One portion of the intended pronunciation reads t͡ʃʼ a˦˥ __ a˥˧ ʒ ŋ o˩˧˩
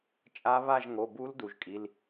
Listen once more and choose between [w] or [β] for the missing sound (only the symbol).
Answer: β